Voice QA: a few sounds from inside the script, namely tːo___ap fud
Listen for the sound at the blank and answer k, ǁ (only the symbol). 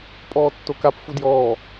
k